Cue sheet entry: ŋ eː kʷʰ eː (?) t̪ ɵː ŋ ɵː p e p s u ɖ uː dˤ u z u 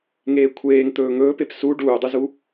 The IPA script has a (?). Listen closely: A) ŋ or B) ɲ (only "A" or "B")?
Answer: A